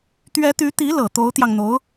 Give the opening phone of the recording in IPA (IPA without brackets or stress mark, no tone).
t̪